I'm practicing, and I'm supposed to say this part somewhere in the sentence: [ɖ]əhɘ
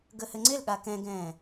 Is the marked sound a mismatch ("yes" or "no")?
yes